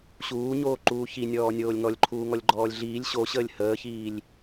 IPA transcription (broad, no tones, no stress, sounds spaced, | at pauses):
ɕ uː ɲ oː ǃ uː ç i nʲ ɔː nʲ oː lʲ ŋ ɔ lʲ ǃʰ uː ŋ ɔ lʲ ɡ͡ǃ ɔː lʲ ɮ iː lʲ ɕ o ɕ əː lʲ h əː ç iː lʲ